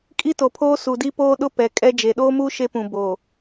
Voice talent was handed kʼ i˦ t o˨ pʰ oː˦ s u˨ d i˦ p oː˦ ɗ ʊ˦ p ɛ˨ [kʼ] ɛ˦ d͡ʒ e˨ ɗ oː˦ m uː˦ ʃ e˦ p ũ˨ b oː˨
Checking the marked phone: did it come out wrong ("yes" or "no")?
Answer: no